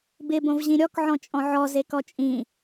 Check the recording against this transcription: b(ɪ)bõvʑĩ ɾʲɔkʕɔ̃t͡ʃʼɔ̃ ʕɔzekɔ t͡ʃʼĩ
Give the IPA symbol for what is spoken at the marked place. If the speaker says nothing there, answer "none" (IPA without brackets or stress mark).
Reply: ɪ